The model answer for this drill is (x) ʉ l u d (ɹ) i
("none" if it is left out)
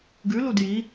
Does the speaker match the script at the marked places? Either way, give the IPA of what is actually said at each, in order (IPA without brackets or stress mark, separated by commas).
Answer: ɡ, j